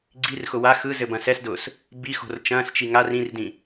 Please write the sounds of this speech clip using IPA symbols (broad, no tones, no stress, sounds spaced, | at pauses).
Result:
ɡ͡ǀ i r x ʊ w a x ɯ z ɘ b ɐ̃ s ɛ s d ʊː s | b i x o̤ r t͡ʃ ɐ̃ː s t͡ʃ i ŋ a r ĩ r d ĩ